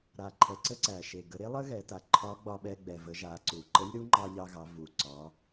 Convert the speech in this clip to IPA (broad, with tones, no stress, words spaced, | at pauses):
ɾa˩ǃʰɛ˩ǀə˧ ǀæ˩ʃe˩ ɡə˩˧ɾe˥lˠə˥ɣɛ˩˧ ta˩ǃʰɒ˧˥ɡ͡bɒ˧ɓɛ˧ ɡ͡bɛ˩və˩˧ ʒa˩˧ǀu˩ ǃə˧˥lʲɾu˧˥ŋ͡ǃɑ˧ ʎɑ˧ɣɑ˩˧vu˩ǀɒ˩˧